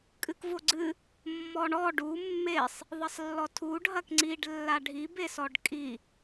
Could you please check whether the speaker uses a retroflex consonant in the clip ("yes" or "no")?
yes